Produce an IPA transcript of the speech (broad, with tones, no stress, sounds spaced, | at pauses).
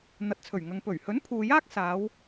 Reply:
n̪ ɐ˨ t̚ t͡sʰ ɵ˨˩ ɥ ŋ ɐ˨ ŋ p ɵ˨˩ ɥ h ɵ˨˥ n pʰ uː˨ j aː˥ k̚ s aː˨˧ w